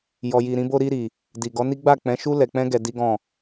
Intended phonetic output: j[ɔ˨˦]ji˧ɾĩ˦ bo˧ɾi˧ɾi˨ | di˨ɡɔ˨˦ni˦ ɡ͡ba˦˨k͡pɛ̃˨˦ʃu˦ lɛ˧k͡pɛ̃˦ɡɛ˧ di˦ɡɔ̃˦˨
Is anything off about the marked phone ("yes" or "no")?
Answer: yes